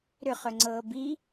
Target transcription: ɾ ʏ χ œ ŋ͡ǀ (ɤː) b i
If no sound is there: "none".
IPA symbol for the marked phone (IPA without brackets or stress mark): ɤː